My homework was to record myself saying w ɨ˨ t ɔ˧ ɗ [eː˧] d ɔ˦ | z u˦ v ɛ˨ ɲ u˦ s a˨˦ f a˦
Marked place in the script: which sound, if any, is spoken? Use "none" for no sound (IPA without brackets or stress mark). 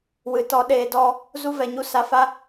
eː˧